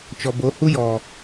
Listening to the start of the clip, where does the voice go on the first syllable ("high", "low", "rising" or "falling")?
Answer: low